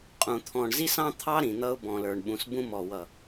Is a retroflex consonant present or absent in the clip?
present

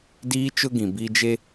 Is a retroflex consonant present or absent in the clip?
absent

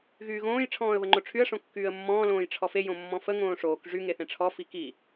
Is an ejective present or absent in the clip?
absent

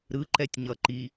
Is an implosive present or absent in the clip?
absent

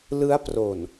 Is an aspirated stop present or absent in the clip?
absent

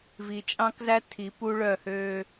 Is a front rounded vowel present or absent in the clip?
present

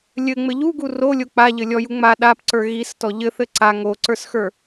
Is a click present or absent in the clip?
present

